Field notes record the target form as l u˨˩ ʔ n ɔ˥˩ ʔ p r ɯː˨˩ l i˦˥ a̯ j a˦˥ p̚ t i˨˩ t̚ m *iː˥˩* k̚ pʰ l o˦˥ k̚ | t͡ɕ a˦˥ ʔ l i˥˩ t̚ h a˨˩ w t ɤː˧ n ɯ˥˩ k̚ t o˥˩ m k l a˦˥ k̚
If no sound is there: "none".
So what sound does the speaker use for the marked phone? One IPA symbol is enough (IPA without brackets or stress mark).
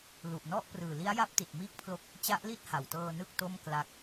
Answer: iː˥˩